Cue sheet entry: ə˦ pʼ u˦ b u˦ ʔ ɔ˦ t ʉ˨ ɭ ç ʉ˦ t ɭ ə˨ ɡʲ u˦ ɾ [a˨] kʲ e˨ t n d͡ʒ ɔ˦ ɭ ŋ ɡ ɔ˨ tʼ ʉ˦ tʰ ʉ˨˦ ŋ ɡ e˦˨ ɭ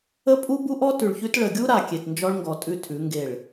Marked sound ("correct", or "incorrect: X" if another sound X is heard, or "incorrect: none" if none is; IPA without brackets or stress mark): correct